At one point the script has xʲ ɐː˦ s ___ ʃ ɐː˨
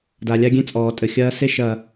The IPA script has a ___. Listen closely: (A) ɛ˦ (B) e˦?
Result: B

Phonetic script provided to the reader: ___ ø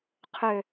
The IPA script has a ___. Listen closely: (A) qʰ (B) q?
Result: A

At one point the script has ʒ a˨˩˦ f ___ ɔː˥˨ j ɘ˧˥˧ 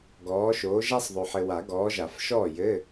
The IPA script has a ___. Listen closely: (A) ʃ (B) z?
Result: A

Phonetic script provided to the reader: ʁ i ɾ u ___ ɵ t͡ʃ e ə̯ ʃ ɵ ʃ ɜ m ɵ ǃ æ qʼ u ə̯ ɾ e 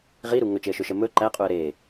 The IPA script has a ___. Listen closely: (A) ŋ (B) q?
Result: A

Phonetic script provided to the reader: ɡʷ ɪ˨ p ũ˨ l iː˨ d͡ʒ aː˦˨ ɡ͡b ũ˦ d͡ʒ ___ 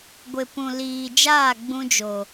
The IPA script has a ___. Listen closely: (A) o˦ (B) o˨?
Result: B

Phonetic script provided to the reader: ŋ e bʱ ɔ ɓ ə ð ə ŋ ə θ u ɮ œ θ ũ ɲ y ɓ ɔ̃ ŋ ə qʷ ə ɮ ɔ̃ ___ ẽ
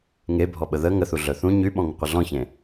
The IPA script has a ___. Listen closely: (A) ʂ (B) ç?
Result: B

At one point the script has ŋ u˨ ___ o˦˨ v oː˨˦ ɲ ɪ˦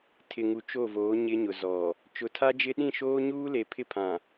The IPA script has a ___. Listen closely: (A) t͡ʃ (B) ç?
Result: A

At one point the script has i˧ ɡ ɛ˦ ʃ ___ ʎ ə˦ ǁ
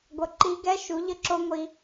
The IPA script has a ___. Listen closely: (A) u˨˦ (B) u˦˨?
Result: A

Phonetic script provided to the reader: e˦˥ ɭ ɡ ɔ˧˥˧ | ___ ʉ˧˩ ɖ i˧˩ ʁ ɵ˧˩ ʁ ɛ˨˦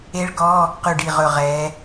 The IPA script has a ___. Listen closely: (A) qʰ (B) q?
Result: B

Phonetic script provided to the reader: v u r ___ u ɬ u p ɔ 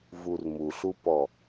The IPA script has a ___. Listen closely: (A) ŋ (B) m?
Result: B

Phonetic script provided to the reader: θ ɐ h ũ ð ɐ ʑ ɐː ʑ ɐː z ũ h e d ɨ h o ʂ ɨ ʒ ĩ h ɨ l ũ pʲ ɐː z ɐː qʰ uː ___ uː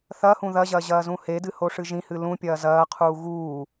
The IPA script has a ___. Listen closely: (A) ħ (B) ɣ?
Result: B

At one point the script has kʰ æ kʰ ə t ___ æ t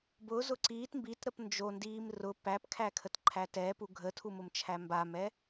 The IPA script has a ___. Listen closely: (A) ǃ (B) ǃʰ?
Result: B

